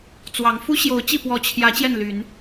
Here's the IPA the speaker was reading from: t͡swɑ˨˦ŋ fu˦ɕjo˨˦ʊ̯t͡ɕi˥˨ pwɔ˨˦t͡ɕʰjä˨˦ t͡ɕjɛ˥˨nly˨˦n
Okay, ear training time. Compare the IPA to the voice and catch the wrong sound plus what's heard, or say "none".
none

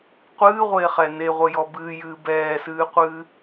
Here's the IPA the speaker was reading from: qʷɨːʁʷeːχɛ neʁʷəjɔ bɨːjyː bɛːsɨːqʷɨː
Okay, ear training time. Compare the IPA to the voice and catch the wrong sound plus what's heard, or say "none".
yː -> ɨː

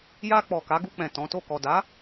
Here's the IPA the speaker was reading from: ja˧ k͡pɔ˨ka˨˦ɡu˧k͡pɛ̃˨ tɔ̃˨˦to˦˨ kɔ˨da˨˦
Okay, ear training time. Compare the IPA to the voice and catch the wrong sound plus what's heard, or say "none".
none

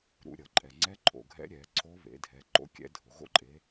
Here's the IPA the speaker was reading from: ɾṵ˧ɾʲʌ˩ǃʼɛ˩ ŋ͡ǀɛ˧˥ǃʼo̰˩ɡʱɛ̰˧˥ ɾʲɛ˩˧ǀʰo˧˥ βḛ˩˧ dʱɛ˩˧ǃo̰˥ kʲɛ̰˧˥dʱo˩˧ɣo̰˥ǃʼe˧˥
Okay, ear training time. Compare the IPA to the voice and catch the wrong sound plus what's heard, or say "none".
none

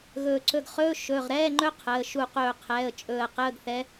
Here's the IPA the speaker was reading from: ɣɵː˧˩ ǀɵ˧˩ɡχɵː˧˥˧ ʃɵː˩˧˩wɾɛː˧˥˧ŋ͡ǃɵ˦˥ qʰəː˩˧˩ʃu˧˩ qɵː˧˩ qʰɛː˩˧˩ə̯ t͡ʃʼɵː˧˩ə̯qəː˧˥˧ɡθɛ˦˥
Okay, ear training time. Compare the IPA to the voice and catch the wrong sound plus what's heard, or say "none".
w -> ʁ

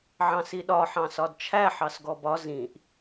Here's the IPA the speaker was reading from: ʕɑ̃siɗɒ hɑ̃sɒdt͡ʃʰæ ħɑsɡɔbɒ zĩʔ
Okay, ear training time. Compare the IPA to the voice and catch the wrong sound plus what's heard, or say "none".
h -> ħ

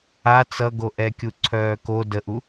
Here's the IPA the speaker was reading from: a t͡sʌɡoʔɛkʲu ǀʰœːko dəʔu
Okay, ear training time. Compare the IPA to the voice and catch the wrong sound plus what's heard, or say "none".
none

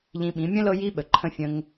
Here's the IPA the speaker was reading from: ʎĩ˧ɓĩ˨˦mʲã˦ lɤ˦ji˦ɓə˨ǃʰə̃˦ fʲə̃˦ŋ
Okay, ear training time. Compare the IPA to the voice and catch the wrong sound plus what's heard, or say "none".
ã˦ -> ə̃˦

